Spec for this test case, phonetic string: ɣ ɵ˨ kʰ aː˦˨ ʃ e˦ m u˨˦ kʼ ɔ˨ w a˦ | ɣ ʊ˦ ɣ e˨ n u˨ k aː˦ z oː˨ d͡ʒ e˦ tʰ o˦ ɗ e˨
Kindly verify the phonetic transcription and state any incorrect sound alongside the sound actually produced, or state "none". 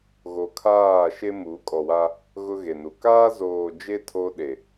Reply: ɵ˨ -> o˨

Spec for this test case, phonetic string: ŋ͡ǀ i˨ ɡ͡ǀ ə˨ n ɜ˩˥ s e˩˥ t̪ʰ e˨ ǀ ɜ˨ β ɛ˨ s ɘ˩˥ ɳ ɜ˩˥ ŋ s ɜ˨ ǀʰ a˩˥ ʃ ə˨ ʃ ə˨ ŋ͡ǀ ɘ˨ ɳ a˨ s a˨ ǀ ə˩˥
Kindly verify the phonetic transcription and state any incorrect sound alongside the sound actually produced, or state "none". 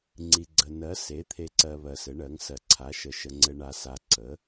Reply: ɛ˨ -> ɜ˨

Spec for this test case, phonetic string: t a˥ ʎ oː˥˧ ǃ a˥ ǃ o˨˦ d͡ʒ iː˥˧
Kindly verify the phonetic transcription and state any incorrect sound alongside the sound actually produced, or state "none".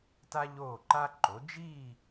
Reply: none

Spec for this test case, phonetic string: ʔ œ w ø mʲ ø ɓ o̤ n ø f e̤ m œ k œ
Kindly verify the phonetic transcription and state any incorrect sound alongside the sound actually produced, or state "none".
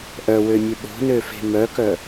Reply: none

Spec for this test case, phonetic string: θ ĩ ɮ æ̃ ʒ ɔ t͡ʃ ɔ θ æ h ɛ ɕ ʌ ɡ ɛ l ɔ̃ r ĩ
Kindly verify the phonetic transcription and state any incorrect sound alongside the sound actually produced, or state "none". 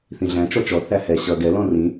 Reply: ʒ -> t͡ʃ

